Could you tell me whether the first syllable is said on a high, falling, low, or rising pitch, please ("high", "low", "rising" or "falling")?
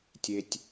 low